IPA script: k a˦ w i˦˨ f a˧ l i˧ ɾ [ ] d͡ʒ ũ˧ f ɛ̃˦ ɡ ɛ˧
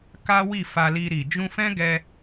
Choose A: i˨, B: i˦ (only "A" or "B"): A